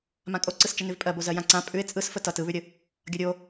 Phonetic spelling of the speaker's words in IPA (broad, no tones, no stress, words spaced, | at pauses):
mãkʼoǀɯs t͡ʃənʉvpʼɜbo zɜjãǀã pʼʉɪ̯ t͡sʼɯs fətʌt ɯβʉɾʲə | ɡʲʌɾʲo